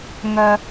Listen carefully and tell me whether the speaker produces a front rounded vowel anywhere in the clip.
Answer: yes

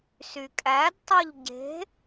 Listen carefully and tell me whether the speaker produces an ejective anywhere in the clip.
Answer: yes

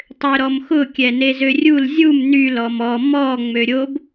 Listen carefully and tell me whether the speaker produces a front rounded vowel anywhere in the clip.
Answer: yes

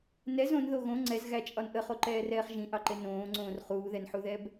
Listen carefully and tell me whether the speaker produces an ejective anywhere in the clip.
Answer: yes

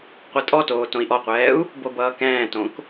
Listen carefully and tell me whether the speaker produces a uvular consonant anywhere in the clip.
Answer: yes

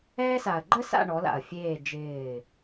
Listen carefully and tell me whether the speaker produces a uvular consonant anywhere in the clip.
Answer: no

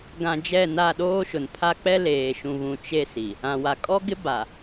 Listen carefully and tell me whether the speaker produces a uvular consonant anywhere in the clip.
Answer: no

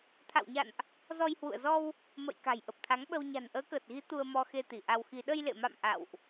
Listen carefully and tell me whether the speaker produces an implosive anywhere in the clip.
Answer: yes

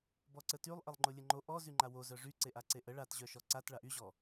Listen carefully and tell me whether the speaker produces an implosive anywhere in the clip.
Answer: no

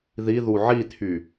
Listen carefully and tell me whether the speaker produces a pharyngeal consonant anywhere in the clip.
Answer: yes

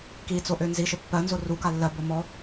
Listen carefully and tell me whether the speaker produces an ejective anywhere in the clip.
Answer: no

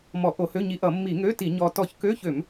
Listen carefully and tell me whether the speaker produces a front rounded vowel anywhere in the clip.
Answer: yes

